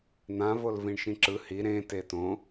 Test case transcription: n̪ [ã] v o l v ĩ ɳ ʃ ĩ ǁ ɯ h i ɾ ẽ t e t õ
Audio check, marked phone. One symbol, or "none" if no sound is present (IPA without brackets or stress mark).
ã